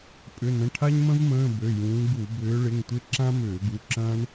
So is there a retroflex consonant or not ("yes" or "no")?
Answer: yes